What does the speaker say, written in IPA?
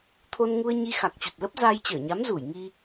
t̪ʰ o˧ n ŋ u˧ ə̯ ɲ i˧ x a˨˩ k̚ t͡ɕ u˨˩ t̚ l ə˦˥ p̚ z aː˧ j t͡ɕ əː˧˩ ɲ a˨˦ m z u˧˩ j ŋ i˧

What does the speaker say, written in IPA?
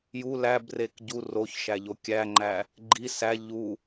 j u l æ b r e k ɟ u r o ç ʃ æ ʎ o kʲ æ ŋ͡ǃ æ | ɡ͡ǃ i s æ ʎ u

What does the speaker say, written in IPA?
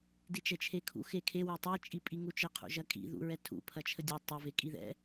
d i t͡ʃ ɛ t͡ʃʰ e kʰ ṵ x e kʰ e w u tˤ e t͡ʃʼ i pʼ i ŋ u t͡ʃ ə qʰ ṵ ʒ ɐ kʼ ḭ ð ṵ ɹ ɛ tʰ ṵ pʰ ɐ t͡ʃʰ ə dʲ u tˤ ə v e kʼ i ð ɛ̰

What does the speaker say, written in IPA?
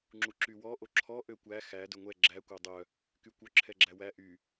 ŋ͡ǁ u ǁ y w ɔ ʔ o ǁʰ ɔ ʔ ø kʷ æ x æ d ɵ ŋʷ ɛ ɡ͡ǁ æ kʷ ɑ dˤ œ | k y kʷ œ ǁʰ ɛ ɡ͡ǁ æ w æ ʔ y

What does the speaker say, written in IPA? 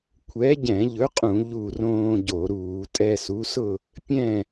kʷʰ ɛ˨˥ ɟ ɛ̃˧˩˧ ʎ ɵ˨˥ qʼ ũ˧˩˧ ʎ u˧˩ r õː˧ ɟ o˧˩˧ ɾ uː˧˩˧ tʼ ɛ˧ s u˨˥ s ʊ˥˨ | pʲ ɛ̃˥˨

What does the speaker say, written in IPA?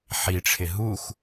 ħ i ʈ͡ʂʰ ɪ ɦ u x

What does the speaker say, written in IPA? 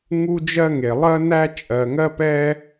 ŋ u˥ d͡ʒ ɜ˥ ŋ e˨ lˠ ɜ˥ n æ˥ t͡ʃʼ ɜ˨ ŋ ɜ˥ p ɛ˥

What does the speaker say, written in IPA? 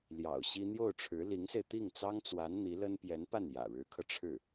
l j ɑ̰˨˩ ʊ̯ ɕ i˥ n̪ j o˥˩ ʊ̯ ʈ͡ʂʰ ɻ̩˧˥ l i˧˥ ŋ s e˧ ɪ̯ t̪ i˥˩ ŋ t͡s ɑ˥ ŋ t͡s w a˧˥ n n̪ i˧˥ l ə˥ n p j ɛ˧˥ n p a˥˩ n j ä̰˨˩ ɻ ɻ̩˧˥ kʰ ɤ˧ ʈ͡ʂʰ ɻ̩˥˩

